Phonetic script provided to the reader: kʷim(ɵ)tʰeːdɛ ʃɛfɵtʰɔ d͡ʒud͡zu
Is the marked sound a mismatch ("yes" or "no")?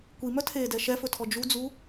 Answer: yes